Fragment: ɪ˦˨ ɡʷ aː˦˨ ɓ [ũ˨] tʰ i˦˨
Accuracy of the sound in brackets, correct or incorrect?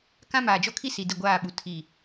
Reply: incorrect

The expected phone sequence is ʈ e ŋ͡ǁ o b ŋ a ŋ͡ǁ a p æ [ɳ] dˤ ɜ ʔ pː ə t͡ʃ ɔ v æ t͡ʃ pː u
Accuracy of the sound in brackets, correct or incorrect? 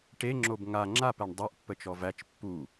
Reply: correct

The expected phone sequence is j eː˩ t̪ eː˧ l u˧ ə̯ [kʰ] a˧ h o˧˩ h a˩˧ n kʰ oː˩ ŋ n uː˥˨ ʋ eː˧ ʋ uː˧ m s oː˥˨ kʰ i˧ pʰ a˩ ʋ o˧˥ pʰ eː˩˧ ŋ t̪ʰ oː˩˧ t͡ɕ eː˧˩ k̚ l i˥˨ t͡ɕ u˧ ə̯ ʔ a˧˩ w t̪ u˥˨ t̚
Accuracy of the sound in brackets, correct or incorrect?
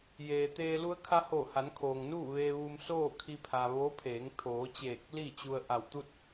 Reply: correct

